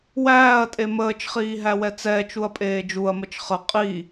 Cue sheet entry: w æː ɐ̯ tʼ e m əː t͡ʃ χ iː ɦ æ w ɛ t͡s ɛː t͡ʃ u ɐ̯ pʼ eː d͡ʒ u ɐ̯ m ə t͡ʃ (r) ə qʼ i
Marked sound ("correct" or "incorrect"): incorrect